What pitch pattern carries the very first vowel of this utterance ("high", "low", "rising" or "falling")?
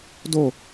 falling